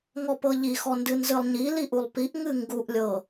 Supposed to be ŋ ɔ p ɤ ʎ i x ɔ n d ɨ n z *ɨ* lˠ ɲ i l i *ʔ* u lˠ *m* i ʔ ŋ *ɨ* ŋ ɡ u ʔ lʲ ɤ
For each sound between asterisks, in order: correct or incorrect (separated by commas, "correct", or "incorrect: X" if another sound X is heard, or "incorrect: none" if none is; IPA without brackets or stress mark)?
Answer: correct, correct, incorrect: p, correct